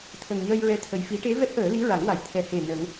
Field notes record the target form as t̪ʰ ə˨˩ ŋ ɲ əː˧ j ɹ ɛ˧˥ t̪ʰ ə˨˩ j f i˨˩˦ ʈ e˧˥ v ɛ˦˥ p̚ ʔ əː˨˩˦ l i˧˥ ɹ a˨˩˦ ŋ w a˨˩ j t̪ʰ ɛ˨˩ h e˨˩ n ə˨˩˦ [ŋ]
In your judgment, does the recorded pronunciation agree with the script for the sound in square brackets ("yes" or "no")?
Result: yes